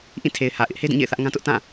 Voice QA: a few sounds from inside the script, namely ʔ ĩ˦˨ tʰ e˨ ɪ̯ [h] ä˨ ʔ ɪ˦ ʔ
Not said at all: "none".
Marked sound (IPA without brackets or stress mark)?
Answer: h